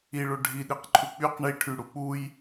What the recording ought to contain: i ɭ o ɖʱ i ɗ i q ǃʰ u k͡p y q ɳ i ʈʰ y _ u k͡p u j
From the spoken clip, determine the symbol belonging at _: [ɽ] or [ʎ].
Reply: ɽ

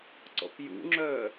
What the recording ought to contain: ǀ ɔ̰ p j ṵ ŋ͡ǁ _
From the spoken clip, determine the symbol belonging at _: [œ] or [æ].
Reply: œ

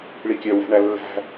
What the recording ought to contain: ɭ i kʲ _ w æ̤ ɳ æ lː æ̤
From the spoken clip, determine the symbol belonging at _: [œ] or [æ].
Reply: œ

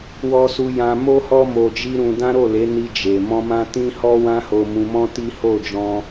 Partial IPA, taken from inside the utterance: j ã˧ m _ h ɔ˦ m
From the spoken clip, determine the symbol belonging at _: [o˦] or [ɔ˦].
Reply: o˦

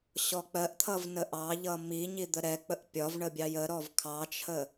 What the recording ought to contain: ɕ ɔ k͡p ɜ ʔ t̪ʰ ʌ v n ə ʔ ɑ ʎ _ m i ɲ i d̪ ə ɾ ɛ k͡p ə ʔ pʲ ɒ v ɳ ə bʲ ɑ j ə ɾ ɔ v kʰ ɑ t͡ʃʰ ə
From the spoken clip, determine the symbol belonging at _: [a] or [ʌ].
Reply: ʌ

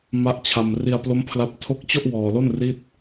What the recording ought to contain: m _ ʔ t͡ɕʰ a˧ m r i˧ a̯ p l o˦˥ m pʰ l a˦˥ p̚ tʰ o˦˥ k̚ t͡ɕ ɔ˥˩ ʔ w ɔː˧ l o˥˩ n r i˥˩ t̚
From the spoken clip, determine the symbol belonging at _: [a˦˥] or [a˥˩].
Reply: a˦˥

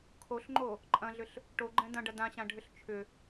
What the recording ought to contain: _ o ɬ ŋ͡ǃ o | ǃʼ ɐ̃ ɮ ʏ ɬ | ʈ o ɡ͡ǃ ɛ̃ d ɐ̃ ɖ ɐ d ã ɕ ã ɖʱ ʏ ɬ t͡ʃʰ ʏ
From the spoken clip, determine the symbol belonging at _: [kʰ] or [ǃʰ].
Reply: kʰ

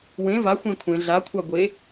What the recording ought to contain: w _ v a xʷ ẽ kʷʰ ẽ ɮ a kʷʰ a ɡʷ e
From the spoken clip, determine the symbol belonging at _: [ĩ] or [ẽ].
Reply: ẽ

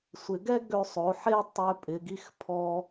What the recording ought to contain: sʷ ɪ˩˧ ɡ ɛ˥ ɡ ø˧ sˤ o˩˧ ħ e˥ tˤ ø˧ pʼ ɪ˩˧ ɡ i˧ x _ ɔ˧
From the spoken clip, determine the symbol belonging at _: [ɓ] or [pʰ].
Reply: pʰ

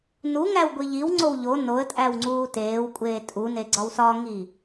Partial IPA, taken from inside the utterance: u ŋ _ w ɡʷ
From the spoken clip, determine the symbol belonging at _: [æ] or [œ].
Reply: æ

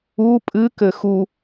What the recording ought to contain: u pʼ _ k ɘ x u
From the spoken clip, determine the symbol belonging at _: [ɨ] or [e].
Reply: ɨ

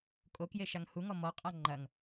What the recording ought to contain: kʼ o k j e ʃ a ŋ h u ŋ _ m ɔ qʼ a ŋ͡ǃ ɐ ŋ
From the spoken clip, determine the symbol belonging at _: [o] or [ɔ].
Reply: ɔ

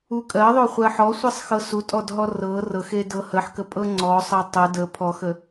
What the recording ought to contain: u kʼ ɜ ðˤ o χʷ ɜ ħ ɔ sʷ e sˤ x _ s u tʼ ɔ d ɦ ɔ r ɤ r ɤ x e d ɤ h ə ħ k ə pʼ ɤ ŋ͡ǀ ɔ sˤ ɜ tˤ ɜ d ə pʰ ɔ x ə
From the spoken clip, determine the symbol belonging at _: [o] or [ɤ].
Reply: ɤ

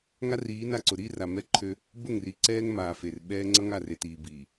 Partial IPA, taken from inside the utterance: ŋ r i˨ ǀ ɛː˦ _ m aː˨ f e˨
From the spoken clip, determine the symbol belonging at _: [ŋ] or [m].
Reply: ŋ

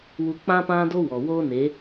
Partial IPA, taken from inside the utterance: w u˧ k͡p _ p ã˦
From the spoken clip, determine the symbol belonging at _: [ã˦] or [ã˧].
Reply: ã˦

